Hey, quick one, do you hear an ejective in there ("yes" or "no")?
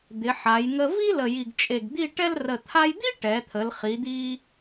yes